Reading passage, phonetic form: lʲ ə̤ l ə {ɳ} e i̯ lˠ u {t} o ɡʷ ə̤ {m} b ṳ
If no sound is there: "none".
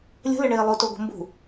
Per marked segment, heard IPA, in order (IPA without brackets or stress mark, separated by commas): ɳ, t, m